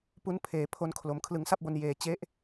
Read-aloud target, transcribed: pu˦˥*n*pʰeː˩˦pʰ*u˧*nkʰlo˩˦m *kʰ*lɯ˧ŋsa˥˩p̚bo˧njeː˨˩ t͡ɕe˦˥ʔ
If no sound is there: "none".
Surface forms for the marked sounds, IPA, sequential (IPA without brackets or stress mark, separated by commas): n, o˧, kʰ